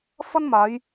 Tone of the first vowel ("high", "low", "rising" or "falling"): high